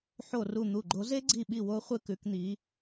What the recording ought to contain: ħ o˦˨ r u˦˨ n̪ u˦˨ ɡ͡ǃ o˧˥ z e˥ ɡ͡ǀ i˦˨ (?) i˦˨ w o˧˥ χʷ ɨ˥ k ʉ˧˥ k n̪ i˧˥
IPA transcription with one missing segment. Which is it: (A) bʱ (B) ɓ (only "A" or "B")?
B